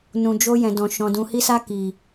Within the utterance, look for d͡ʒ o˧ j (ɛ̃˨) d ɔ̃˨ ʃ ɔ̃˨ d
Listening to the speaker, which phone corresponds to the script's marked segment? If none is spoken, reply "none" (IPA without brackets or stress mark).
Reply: ɛ̃˨